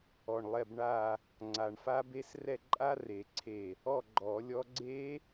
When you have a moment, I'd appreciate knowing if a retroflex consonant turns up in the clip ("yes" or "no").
yes